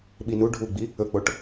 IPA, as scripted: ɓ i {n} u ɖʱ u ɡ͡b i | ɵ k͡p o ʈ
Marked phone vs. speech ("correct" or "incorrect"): correct